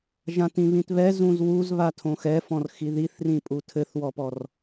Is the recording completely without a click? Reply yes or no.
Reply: yes